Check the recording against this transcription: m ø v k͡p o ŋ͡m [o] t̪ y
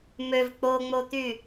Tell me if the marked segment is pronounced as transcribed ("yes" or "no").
yes